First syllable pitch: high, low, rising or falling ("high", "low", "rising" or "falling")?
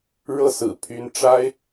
falling